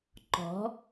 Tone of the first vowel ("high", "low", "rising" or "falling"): rising